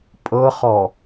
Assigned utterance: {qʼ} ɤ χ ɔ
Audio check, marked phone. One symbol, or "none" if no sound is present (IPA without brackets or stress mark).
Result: pʼ